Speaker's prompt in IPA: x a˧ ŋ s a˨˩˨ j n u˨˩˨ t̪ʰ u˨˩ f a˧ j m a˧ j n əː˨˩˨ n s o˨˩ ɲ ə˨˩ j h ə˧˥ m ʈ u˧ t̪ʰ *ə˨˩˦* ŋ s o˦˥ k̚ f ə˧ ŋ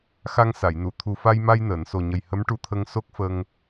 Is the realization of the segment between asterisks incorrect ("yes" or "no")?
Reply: yes